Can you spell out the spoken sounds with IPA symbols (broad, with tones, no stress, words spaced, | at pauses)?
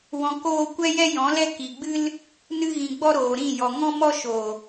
wɔ̃˨koː˧ kʷɛ˦jɛ˦jɔ̃˨˦lɛ˦ ki˨ɡ͡bɨ˦l | nɨ˧ɣĩ˨ ɡ͡bɔ˦ɾoː˨ɾĩ˦˨ jɔ˨ŋɔ̃˦mɔ˦ ʃo˨